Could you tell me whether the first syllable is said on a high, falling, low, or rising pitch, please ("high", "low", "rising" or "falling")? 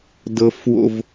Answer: high